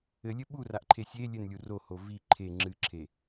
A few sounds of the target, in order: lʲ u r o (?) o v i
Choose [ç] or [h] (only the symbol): h